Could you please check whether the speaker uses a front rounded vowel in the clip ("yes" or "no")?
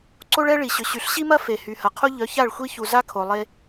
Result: yes